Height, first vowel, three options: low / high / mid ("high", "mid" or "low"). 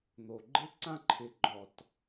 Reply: mid